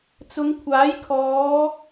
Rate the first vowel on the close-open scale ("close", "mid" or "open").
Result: close